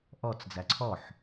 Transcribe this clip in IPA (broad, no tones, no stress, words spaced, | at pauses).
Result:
ʔɔt͡s d͡zæǀʰɔħ